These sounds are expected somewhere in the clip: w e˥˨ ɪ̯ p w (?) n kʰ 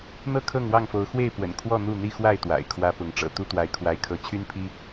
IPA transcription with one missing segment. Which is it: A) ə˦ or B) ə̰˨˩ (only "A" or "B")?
B